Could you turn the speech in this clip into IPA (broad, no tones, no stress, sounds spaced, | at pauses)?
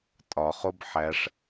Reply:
tʼ ɒ χ o b ħ æ ʂ